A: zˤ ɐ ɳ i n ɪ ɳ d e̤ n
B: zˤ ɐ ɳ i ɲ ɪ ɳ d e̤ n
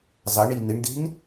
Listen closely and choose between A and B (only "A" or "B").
A